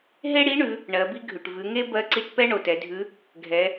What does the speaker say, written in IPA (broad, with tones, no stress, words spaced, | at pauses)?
ɦe˥ɽi˧˥ɳʉ˩˧ | ɳɜ˩˧bi˥ɡʱʉ˩ʈ vʉ˩˧ŋe˥ bɜ˧˥ǀi˧ʈpɛ˥ ɳo˩tɛ˩˧dʱʉ˧˥ | ɡʱɛ˩˧